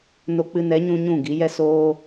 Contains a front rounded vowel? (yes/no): no